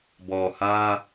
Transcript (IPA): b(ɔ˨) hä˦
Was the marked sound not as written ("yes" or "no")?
no